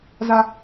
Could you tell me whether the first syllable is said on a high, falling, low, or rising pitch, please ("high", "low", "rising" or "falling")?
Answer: high